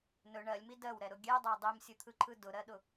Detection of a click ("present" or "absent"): present